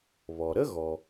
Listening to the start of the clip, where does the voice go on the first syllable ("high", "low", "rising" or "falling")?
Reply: low